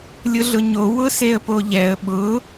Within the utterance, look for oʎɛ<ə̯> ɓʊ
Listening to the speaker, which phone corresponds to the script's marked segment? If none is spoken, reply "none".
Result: ə̯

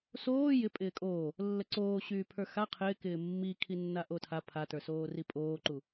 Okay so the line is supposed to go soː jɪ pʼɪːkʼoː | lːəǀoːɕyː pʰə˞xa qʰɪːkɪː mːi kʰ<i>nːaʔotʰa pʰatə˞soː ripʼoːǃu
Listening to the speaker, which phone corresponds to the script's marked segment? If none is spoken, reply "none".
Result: i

